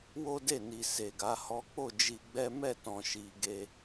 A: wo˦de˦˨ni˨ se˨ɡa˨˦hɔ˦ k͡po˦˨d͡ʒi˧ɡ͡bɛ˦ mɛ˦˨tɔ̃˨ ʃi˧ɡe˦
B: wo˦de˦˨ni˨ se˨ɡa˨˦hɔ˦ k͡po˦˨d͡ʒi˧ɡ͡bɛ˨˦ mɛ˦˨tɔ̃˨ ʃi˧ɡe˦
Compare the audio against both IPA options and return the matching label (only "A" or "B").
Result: A